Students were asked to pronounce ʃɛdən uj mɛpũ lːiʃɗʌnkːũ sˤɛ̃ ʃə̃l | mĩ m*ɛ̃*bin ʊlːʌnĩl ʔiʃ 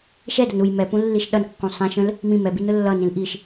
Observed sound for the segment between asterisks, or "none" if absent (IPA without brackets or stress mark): ɛ